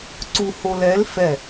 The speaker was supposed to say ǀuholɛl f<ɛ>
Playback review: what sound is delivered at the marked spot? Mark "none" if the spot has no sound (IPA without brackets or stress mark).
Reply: ɛ